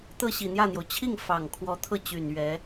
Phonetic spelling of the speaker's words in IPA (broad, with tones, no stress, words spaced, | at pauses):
t̪ɤ˥˩ɕi˨˩n̪jä˥˩n̪jo˩ʊ̯ t͡ɕʰi˥˩ŋ fɑ˨˩ŋ kʰwɔ˧˥t̪ʰɤ˥˩ t͡ɕy˨˩n ɥɛ˧˥